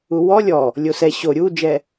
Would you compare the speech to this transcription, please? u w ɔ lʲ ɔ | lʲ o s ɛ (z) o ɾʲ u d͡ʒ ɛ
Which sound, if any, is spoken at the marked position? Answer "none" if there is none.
ɕ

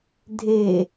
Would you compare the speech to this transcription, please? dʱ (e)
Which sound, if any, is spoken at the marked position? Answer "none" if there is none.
e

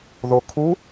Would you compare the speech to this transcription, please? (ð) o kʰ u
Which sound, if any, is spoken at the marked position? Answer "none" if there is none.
ð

